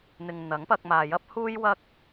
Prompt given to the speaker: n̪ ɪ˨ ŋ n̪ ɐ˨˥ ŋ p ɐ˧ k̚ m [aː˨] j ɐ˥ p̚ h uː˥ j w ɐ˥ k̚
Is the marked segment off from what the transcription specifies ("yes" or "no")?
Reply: no